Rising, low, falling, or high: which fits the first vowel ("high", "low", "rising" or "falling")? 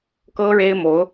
high